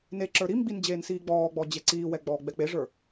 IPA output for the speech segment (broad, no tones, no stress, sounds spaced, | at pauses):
n e ǁ ə˞ ɾ i m ɡ͡b i n d͡ʑ eː n s iː ɡ͡b ɔː ɡ͡b ɔ d͡ʑ e ǀ iː w ɛ ɡ͡b ɔː ɡ͡b ɛ k͡p e ʐ ə˞